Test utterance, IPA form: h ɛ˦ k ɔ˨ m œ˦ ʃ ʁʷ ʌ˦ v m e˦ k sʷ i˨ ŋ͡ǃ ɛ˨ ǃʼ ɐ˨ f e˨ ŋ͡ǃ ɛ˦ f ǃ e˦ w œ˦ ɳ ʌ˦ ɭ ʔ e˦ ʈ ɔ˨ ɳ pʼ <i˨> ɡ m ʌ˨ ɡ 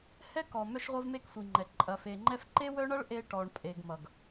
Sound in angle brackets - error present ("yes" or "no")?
yes